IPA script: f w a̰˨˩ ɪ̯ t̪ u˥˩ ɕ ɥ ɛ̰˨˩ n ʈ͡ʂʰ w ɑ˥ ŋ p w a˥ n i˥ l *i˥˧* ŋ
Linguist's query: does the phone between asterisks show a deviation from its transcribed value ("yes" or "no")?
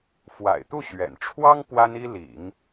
yes